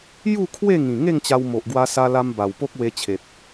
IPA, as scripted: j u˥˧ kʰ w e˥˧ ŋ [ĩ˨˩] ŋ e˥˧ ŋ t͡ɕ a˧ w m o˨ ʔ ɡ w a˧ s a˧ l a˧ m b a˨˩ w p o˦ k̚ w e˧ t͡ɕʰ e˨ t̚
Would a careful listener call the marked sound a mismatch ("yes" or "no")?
no